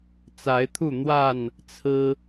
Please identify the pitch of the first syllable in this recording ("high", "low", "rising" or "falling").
rising